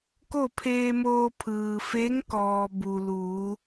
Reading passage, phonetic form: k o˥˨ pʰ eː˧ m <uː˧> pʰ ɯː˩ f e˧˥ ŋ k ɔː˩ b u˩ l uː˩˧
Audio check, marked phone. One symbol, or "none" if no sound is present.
oː˧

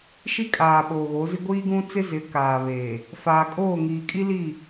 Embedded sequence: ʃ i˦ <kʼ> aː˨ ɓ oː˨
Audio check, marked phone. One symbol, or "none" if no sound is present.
kʼ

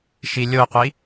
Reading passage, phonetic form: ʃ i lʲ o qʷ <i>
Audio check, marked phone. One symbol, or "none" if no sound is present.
i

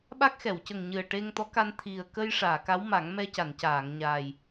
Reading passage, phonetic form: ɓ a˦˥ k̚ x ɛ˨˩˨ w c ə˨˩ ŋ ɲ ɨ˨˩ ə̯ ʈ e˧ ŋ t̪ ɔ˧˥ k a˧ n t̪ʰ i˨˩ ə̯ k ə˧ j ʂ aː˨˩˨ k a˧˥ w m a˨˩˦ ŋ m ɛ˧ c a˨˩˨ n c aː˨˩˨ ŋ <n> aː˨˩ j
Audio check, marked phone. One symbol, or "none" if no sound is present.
ɲ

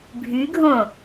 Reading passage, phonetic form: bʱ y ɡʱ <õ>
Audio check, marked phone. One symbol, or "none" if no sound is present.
õ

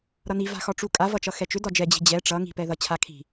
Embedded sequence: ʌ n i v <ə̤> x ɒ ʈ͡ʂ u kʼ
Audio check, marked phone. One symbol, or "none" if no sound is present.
a̤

